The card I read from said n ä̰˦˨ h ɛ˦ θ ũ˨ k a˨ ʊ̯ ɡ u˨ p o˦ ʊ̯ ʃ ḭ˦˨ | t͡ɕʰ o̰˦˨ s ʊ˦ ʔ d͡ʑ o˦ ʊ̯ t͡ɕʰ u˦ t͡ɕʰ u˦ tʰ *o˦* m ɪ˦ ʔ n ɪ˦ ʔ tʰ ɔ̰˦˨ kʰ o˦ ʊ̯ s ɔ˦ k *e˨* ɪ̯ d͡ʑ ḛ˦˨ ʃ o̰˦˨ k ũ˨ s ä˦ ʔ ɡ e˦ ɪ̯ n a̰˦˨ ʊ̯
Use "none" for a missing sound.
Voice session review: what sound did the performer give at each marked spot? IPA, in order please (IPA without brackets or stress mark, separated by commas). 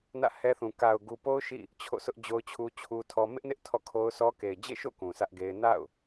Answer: ɔ˦, e˨